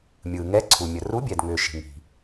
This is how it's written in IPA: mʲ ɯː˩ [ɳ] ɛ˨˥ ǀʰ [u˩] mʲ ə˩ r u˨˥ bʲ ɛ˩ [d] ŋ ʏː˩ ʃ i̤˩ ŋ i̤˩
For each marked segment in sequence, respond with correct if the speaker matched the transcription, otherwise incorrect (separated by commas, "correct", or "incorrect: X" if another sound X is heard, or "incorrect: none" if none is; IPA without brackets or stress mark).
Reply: incorrect: ŋ, correct, correct